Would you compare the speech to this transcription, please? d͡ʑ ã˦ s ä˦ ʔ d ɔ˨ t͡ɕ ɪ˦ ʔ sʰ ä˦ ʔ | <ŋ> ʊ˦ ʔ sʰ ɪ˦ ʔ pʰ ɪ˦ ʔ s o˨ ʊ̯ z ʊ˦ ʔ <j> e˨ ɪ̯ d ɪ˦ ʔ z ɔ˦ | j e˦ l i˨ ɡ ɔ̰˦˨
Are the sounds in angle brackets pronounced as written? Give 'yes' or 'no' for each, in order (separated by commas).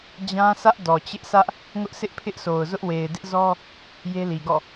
yes, no